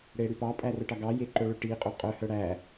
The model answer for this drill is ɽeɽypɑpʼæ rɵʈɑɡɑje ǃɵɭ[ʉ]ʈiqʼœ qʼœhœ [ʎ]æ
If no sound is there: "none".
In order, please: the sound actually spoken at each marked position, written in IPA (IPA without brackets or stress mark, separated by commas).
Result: ʉ, ɽ